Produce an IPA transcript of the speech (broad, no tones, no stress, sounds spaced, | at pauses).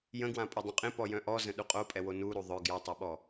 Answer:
j ə̃ ɡ w ã pʼ ɛ dˤ ẽ qʼ ẽ p ɔ j œ̃ ʔ ɔ z ə̃ ɗ u qʼ o pʼ ɛ w o n u ɾ u ðˤ œ ɡ j ɔ tˤ ɛ ɓ ɔ